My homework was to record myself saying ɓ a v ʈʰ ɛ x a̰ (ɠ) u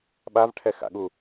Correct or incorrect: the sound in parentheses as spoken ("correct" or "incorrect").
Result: correct